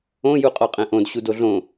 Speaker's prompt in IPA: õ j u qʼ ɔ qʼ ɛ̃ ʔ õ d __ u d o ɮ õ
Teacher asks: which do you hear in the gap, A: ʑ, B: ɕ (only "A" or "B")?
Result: B